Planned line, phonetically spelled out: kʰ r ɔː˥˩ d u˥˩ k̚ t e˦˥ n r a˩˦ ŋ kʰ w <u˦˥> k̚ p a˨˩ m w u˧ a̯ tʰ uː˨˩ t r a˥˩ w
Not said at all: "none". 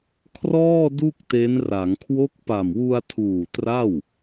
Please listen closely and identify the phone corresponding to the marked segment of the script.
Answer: o˦˥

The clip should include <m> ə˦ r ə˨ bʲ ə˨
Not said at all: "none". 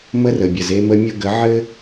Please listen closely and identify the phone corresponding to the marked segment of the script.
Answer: m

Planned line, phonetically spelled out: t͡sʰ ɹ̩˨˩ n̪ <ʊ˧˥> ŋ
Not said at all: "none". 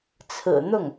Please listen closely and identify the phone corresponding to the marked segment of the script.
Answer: ʊ˥˩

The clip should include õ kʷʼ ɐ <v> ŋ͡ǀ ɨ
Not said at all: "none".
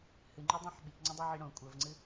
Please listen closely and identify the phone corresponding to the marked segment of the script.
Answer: v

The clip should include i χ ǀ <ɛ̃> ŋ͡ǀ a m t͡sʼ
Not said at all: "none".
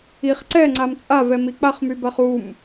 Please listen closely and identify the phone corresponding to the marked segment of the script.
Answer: ɛ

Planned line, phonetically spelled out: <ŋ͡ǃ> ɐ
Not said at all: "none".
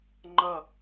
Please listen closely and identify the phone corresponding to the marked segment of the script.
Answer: ŋ͡ǃ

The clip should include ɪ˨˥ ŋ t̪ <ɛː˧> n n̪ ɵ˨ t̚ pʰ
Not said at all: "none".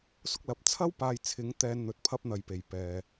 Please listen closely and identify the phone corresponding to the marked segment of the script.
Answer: ɛː˧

